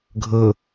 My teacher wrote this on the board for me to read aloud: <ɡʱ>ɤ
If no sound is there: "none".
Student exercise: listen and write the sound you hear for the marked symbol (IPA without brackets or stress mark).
ɡʱ